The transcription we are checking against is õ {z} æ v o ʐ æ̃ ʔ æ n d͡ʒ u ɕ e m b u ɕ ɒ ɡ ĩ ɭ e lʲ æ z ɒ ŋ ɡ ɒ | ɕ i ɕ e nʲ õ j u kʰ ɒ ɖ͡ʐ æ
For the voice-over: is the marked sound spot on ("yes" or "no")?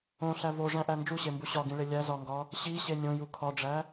no